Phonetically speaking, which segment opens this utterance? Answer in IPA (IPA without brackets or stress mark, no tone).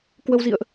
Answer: k